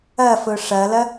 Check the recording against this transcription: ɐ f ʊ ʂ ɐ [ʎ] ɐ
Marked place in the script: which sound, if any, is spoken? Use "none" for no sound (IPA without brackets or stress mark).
l